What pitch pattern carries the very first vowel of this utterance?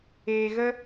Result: low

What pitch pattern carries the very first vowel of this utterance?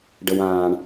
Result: high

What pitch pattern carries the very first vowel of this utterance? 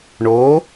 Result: rising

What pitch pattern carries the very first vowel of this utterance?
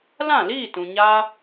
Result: falling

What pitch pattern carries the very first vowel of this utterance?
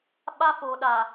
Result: high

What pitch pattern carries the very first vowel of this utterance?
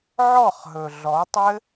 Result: falling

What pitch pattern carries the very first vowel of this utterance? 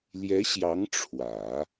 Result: rising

